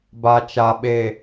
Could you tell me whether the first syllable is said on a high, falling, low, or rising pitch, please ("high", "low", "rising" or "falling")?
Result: low